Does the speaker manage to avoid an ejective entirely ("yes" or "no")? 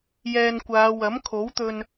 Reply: yes